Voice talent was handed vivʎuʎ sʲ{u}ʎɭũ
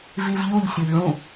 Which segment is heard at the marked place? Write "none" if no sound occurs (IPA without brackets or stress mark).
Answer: o